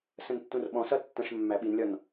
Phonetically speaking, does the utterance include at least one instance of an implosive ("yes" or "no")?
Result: yes